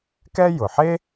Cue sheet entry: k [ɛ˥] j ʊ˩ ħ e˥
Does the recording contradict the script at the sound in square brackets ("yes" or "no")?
no